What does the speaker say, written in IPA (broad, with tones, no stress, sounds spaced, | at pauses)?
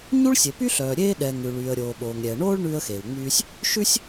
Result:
ɲ u˥ ɭ sʲ e˩ p y˥ ɬ œː˩ ɾʲ eː˥ ɗ ɛ˩ ŋ ʉ˩ ɭ yː˩ ə̯ ɾʲ oː˩ ɓ oː˩ ŋ ɾʲ ɛ˩ ə̯ ɳ oː˥ ɭ ɳ ʉː˥ ə̯ x eː˩ w ŋ͡m yː˥ sʲ | ʃ ʉ˥ sʲ